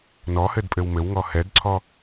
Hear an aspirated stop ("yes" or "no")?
yes